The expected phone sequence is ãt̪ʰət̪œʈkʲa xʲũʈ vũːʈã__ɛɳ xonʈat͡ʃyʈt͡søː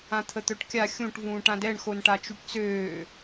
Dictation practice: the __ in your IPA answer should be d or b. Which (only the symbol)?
d